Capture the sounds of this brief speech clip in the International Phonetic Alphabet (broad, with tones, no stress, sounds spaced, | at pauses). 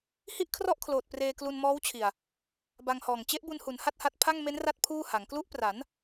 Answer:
h i˥˩ ʔ kʰ r ɔ˥˩ ʔ kʰ l oː˨˩ t̚ p r eː˧ k l u˧ n m ɔː˦˥ w t͡ɕʰ i˨˩ a̯ | b a˧ ŋ h ɔː˨˩ ŋ t͡ɕ e˦˥ ʔ b u˧ n h u˩˦ n h a˥˩ t̚ h a˦˥ t̚ pʰ a˥˩ ŋ m e˦˥ n r a˦˥ t̚ pʰ uː˥˩ h a˩˦ ŋ k l u˦˥ ʔ p r a˩˦ n